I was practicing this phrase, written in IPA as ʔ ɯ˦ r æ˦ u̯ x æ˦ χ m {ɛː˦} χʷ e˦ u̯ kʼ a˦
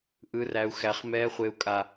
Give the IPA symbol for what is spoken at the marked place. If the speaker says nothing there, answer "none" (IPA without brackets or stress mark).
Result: ɛː˦